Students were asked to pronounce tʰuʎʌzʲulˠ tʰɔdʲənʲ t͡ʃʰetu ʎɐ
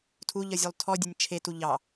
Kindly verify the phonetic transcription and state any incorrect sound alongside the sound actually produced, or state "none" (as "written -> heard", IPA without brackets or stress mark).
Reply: ɐ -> ɑ